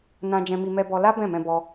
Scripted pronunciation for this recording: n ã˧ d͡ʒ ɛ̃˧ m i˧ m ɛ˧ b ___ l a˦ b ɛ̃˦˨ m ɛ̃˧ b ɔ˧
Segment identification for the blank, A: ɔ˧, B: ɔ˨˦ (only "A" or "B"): A